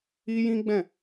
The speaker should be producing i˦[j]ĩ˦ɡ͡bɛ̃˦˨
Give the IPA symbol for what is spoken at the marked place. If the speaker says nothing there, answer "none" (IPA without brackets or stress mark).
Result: j